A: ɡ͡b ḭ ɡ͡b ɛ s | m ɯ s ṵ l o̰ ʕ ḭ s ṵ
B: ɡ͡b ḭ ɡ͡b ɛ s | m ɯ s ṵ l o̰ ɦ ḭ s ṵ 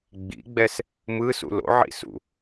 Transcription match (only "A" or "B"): A